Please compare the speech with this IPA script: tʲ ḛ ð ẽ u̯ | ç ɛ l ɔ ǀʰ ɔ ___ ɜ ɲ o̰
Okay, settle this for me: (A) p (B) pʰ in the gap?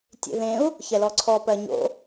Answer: A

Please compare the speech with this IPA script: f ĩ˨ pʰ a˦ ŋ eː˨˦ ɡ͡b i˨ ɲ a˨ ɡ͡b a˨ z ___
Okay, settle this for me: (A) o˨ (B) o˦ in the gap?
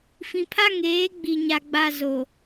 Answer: A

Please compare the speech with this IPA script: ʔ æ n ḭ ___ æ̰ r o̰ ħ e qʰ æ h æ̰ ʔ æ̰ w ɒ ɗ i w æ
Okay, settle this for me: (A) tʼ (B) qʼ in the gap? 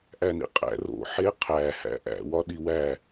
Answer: B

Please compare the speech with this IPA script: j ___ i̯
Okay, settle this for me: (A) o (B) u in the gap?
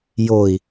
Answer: A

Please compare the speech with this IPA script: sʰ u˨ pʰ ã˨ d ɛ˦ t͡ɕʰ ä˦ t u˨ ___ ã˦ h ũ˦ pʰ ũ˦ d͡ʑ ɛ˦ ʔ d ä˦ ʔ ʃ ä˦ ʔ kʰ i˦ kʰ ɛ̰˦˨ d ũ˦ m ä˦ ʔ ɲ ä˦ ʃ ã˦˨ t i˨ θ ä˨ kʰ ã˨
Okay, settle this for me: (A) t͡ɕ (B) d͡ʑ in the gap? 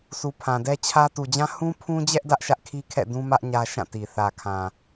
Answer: B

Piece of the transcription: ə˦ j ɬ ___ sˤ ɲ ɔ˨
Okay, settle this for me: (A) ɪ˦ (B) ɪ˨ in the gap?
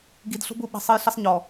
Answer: A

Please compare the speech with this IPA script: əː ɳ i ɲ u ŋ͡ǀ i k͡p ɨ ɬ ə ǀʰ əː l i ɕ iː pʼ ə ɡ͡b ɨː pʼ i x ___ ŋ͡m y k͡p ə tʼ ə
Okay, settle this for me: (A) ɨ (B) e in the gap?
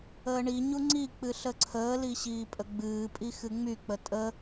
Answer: A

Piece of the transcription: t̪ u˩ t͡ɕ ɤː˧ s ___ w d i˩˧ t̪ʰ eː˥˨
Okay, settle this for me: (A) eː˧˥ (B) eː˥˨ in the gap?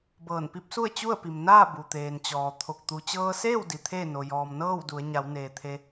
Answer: B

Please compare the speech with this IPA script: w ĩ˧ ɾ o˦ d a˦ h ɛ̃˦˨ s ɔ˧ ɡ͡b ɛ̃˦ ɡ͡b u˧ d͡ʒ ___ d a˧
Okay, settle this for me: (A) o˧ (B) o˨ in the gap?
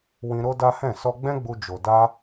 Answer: B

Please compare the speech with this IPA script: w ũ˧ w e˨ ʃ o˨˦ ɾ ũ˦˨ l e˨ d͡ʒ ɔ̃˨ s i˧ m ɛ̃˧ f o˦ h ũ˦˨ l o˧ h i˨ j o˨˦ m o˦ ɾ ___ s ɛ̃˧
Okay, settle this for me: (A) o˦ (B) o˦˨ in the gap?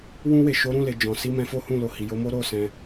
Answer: B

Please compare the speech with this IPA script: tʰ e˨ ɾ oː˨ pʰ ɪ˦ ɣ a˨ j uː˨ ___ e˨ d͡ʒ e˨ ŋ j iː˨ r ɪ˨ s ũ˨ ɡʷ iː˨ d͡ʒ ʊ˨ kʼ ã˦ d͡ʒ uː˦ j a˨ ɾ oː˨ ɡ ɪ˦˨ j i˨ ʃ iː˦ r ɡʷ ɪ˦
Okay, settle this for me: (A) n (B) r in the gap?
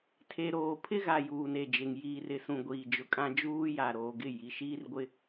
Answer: A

